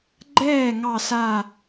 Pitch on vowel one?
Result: falling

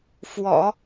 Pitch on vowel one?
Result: low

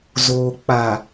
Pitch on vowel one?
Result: low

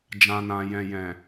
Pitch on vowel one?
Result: low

